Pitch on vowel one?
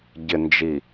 low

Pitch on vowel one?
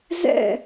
falling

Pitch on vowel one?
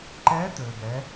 rising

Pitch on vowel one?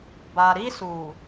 low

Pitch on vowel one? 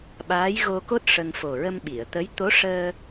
rising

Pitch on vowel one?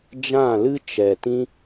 falling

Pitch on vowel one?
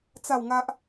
falling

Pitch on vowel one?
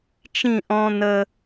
falling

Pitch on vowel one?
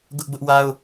high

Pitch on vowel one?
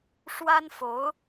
high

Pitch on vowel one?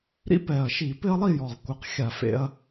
high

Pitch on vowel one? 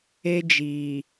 high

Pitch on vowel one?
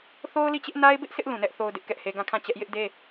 high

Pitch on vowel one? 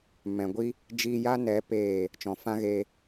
low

